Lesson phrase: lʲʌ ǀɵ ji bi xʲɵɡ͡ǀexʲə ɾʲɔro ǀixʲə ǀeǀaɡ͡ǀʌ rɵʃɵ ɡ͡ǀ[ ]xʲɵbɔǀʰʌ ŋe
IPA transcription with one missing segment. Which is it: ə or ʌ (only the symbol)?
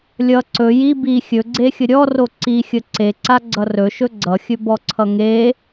ʌ